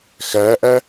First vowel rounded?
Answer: no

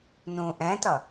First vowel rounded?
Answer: yes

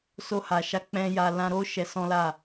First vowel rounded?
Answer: yes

